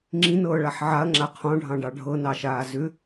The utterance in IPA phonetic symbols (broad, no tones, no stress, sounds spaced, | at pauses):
ŋ͡ǁ ĩ n ɤː ɭ a ħ ʕ a ɐ̯ ŋ͡ǁ a qʰ ɔ̃ ɖʱ ɑ̃ ɖ ɑ ɖʱ ɤ n ɑ ʃ aː z ʏ